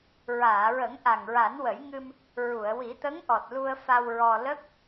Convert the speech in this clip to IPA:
ɹaː˨˩˨ɹə˨˩˦ŋ ʔa˨˩ŋɹa˨˩˦nwə˨˩˦jŋɨ˧m | ɹu˨˩˨ə̯wi˨˩˦t̪ə˧˥ŋʔɔ˨˩t̚ lu˧ə̯fa˧wɹɔ˧ lə˦˥k̚

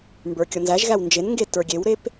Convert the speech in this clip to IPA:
mbə˞kʲɔnzæʒɣæw nd͡ʒenŋɡe tə˞ɡʲewɾep

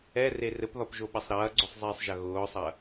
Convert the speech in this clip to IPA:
ɛre rɘpðɒpʒoɓɐsˤ ɾɐːɡ͡ǀʊsˤzˤiːsˤʒɐ ɣʊːsˤɐ

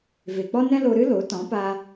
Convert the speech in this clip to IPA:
ve˨k͡pɔ˦nɛ̃˦lo˧ ɾɨ˦lo˨˦ tɔ̃˨˦pa˧

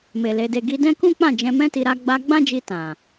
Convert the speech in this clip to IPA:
me˨ le˧de˧ ɡi˧dɛ̃˦kũ˦k͡pã˦˨ d͡ʒɛ̃˧mɛ̃˦ti˧ ɾa˦ ɡ͡ba˧ ɡ͡bã˦d͡ʒi˧ tã˨

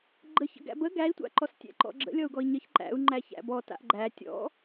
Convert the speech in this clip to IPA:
ɡ͡ǃəç ə̰ɡæ̰bə ɡæi̯tʷa̰ǃɔs tʲæ̰ǃɔ̰ɡ͡ǁə̰ lʲɔu̯ɡɔi̯ɲəç ǃæ̰u̯ ŋ͡ǃæçæ̰bɔ ta̰ʔɡ͡ǃæ tʲɔ̰

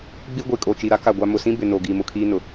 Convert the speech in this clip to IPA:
ɡ͡bi˦ ɡʷi˨kʼo˨t͡ʃi˨ɾa˦ ka˦˨ɡʷa˦ mʊ˨sĩ˦bɪ˨ no˨ɡi˨mʊ˨ kʰiː˦nʊ˨

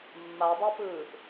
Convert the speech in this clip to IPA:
mːadˤapɯːʔ

